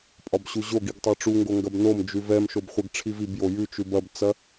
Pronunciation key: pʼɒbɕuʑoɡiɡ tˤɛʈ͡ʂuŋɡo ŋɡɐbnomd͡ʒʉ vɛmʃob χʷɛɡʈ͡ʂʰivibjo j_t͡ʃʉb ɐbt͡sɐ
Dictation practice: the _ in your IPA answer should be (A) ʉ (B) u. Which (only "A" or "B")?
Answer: A